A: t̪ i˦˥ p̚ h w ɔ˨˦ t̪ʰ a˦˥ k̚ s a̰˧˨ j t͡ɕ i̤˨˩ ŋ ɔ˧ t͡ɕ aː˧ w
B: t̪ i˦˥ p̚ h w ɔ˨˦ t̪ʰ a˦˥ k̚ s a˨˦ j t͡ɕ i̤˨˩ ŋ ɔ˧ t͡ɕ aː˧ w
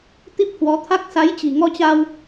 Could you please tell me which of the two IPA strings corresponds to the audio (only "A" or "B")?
B